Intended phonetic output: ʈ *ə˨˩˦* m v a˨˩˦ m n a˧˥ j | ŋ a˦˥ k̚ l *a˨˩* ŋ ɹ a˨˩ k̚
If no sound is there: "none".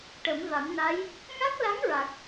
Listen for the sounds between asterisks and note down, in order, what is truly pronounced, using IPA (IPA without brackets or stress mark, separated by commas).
ə˨˩˦, a˧˥